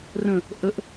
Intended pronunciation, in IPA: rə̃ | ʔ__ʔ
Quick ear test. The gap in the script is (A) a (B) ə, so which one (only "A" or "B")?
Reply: B